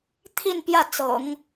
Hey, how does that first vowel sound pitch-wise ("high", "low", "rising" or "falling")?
falling